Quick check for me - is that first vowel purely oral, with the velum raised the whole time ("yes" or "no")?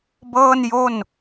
yes